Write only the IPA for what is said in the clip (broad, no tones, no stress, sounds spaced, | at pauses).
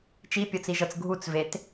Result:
t͡ʃ i pʲ o t͡s i ʒ ɤ t͡s ɡʱ u t͡s v e t